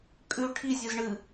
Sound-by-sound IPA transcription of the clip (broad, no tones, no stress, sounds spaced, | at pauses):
kʼ ʉ ʈʰ i zʲ ɨ z ɳ ɨ